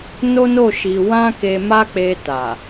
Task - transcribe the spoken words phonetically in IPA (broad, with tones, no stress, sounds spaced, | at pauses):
n o˦ n o˦˨ ʃ i˧ w ã˦ k e˧ m a˦ k͡p e˧ t a˨